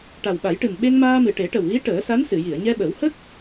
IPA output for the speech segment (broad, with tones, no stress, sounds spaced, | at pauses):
ʈ a˨˩ w ɓ a˨˩˦ j ʈ ɨ˨˩ m ɓ e˧ ŋ m aː˧ m ɨ˨˩ ʈ e˨˩˦ ʈ ə˨˩ w ɣ i˧˥ ʈ əː˨˩˦ s a˧˥ n s ɨ˨˩˨ j i˨˩˨ ə̯ ɲ ɛ˧ ɓ ə˨˩˦ w h ə˦˥ k̚